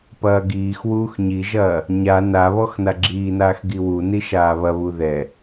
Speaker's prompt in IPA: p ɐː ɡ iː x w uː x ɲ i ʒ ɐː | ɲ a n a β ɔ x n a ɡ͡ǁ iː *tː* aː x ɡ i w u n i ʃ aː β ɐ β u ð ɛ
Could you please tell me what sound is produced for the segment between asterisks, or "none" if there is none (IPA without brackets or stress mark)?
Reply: n